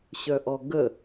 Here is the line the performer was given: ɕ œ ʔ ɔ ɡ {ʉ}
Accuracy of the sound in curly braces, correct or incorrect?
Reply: incorrect